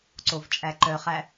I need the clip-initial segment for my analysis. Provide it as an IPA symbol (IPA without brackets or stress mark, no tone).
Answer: ǀ